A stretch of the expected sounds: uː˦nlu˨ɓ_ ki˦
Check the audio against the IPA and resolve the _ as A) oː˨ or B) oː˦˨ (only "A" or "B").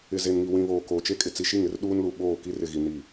B